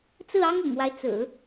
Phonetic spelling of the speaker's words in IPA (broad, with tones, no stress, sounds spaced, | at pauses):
t͡s ɹ̩˥˩ ɑ˥ ŋ ʊ̰˨˩ ŋ w a˦ ɪ̯ t͡s ɹ̩˨˩˦